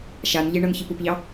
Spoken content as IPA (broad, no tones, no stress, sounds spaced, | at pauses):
ʃ a n ʎ e ɳ ɤ n ç i p ʊ p ʎ ɑ